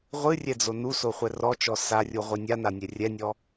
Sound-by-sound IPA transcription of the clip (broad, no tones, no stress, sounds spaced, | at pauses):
ʁʷ ɨ rʲ ɛ d͡z o n u s o χʷ ɛ r ɔ t͡ʃ ɔ s a rʲ u ʁʷ i nʲ a n a nʲ ɛ rʲ ɛ nʲ ɔ